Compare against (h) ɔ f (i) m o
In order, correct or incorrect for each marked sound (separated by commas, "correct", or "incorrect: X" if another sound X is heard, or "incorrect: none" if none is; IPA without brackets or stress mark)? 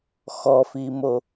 incorrect: x, correct